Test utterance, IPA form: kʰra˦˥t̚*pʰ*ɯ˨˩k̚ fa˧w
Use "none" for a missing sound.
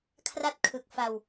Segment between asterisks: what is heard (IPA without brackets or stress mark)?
kʰ